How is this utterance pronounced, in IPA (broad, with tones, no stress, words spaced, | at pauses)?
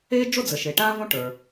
e˥d͡ʒo˥d͡zə˩ʃe˩ ʈã˥võ˥ʈə˞˩